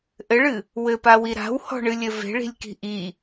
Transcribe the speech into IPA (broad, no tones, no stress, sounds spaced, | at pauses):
ʔ ɘ ɭ ɨ | w ɘ p a w i ɾ a̤ w h ɔ̤ ɳ ɨ lʲ ɘ v e̤ ɭ i̤ lʲ k i̤ ʔ i